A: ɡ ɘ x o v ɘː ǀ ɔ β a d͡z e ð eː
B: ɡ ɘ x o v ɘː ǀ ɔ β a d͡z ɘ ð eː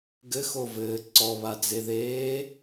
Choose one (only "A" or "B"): A